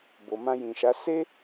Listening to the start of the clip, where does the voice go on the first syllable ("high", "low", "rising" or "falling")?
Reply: low